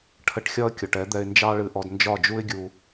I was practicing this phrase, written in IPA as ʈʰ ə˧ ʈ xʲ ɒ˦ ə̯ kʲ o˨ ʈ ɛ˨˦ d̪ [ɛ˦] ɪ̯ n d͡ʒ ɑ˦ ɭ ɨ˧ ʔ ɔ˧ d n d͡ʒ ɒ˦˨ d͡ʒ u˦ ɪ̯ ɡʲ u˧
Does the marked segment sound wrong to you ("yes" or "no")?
yes